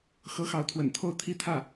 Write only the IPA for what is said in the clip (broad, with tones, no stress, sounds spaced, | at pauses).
x ɤ˧˥ x ɑ˧˥ ʊ̯ t̪ʰ w ə̰˨˩ n t̪ʰ o˥˩ ʊ̯ t̪ʰ i˥ t̪ʰ ä˥˩